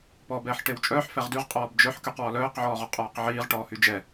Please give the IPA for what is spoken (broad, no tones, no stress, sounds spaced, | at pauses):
p ɔː b ɛː ħ ʈ e w t͡ʃʼ œː ħ f ɛ ʁ d y ʁ qʼ ɔː b d͡ʒ œ ħ k y q w ɔ l œː q ʕ ɔː ʁ ɔ qʼ ɔː q ʕ iː ʁ ʈ ɔː h y d͡ʒ ɛ